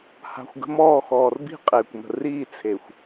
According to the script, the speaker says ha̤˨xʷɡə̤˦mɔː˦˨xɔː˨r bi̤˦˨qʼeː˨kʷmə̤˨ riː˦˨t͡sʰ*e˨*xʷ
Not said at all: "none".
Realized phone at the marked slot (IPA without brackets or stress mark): e˨